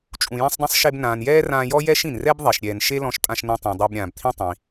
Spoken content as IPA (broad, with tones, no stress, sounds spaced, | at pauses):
t͡ʃʼ ũ˩ j ĩ˧ sˤ dˤ ĩ˧ sˤ ʃ e˧ b n ãː˩ n j ɛː˥ r ãː˧ j ɔ˥ j ɛ˥ ʃ ĩ˩ n r ɛ˥ b ðˤ e˩ ʃ ɾʲ ɛː˩ n ʃ e˥ l ɔ̃˧ ʃ tʼ ã˧ ʃ n ɛ̃˧ tˤ ɛ̃˩ dˤ o˧ b ɾʲ ãː˩ b t̪ʰ ĩ˥ tˤ ĩ˩